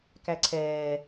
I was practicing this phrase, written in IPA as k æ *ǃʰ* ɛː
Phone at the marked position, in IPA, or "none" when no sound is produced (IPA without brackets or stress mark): ǀʰ